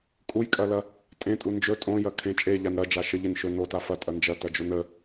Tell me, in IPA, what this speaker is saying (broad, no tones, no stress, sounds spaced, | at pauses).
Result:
kʼ u j kʼ ɐ l ɐ | tʼ ẽ tʼ u n d͡ʒ ɵ tʼ õ j ɐ kʰ ẽ t͡ʃʼ e ʎ a n ɾ ɐ d͡ʒ a ʃ ə ʎ e n ʃ ɵ n o t a f ɐ tʼ ɐ n d͡ʒ ɐ t ɐ d͡ʒ o n ə